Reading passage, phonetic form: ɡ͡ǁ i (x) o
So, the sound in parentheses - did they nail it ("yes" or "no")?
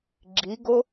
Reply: no